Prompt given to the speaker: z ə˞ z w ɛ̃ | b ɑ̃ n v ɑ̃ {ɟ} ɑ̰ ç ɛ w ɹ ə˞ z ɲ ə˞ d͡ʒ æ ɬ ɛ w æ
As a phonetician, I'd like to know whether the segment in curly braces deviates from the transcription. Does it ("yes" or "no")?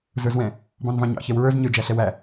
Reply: yes